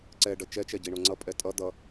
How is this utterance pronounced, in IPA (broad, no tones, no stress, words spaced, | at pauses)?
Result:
ǀɛɖʌ t͡ʃɛt͡ʃɛɟi ɳoŋ͡ǀʌpʼɛ tʼʌ d̪ʌ